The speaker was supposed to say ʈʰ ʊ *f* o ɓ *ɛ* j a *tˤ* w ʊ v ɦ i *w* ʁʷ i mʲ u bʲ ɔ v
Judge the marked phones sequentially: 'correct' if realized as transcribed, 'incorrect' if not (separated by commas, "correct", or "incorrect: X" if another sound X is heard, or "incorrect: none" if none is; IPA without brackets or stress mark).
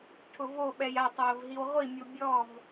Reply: incorrect: v, correct, correct, correct